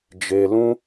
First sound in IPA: d͡ʒ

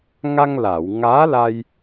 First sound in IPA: ŋ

